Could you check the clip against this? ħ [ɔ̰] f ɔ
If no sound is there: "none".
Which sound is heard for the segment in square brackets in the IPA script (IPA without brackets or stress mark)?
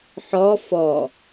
ɔ